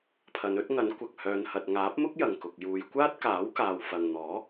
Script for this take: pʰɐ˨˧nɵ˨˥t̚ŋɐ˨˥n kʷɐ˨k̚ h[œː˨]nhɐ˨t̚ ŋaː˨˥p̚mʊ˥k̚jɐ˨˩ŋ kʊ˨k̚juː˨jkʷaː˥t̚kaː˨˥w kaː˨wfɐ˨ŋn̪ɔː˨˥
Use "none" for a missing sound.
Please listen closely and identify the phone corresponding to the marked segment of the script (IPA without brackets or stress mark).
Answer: œː˨